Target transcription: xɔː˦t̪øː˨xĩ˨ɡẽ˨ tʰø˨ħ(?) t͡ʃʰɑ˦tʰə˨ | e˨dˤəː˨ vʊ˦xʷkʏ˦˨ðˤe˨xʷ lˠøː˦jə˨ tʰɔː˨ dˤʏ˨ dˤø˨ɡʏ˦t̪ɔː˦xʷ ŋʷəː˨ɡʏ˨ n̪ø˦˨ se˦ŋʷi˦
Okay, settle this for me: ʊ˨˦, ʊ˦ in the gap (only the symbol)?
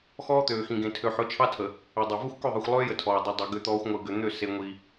ʊ˨˦